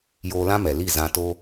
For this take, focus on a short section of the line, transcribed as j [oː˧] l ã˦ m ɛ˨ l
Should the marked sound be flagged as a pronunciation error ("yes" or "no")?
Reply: no